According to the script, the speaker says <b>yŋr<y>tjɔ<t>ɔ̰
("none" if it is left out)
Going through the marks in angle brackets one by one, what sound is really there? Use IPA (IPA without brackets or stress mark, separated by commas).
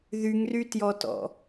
ð, y, t